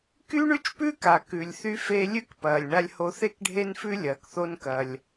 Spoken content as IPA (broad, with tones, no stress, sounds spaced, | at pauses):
k y˥ ɳ ʉ˥ t͡ʃ p ʉː˥ k a˩ k ʉ˩ lʲ θ y˧ f e˧ lʲ ʉ˥ k p ɐː˩ lʲ ɳ a˧ lʲ h o˧ θ e˥ k ɖʱ e˥ n f ʉ˥ lʲ ɐː˩ k θ o˧ n k ɐ˩ lʲ